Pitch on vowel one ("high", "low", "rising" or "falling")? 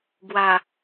low